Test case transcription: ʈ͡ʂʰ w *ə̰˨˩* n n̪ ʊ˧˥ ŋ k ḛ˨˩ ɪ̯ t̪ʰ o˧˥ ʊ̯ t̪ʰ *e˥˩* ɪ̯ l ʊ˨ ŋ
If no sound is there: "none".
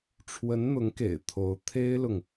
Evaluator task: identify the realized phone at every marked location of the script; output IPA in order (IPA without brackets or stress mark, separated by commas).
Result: ə˧˥, e˥